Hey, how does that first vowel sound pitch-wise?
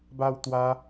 high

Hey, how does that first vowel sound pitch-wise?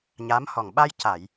rising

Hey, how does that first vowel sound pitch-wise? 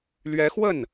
rising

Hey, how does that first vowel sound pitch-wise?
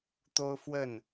high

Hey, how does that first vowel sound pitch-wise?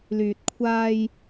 low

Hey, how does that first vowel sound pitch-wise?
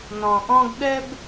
low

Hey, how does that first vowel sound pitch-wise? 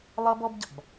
high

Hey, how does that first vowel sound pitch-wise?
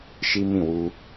high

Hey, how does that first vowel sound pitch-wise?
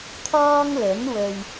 high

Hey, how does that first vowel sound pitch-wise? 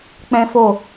high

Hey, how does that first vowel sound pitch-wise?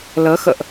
rising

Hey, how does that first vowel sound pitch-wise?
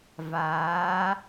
rising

